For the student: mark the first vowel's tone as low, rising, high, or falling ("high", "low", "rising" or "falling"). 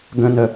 low